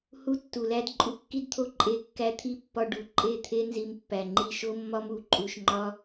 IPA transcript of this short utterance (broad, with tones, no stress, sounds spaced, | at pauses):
h u˦ tː u˨ l æ˦ d ǃʼ u˧ kː i˦ d t̪ʰ o˦ ǃʼ e˧ kː æ˦ t̪ʰ i˦ pː ɒ˧ ɖ u˧ ǃʼ e˦˨ t̪ʰ e˦ n z i˧ m pː æ˨ ŋ͡ǃ i˧ ʃ o˦ mː ɒ˦ m u˧ ǃʼ u˧ ʃ ŋ͡ǃ ɒ˦